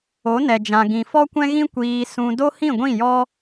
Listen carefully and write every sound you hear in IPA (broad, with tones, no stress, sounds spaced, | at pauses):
o˨˦ n ɛ˨ d͡ʒ ã˨ ɡ ĩ˨ f ɔ˦ kʷ ɛ̃˦ ɣ ĩ˦ kʷ iː˧ s ũ˧ d o˦ h ĩ˦˨ ɡʷ ĩ˦˨ j ɔ˦